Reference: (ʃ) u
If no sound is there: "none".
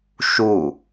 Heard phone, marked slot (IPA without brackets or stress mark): ʃ